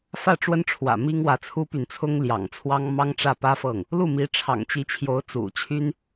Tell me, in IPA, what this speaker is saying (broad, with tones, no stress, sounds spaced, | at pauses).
f ä˥˩ ʈ͡ʂ w ə˥ n ʈ͡ʂʰ w ä̰˨˩ m i˥ ŋ w ä˧˥ t͡sʰ u˥ p y˨ n t͡sʰ ʊ˥ ŋ l j ɑ̰˨˩ ŋ t͡sʰ w ɑ˥ ŋ m ɑ˥ ŋ ʈ͡ʂ ä˥˩ p ä˥ f ɤ˥˩ ŋ | l u˥˩ m i˧˥ ʈ͡ʂʰ ɑ̰˨˩ ŋ t͡ɕ i˧˥ t͡ɕʰ j o˧˥ ʊ̯ t͡s ṵ˨˩ t͡ɕʰ y˥ n